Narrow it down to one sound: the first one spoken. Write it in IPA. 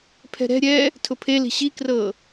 pʰ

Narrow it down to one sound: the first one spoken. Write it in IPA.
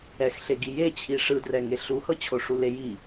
ɛ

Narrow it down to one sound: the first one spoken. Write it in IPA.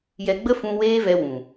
j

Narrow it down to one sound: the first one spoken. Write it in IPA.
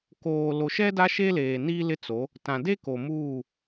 k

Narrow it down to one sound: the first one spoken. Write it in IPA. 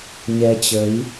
ɲ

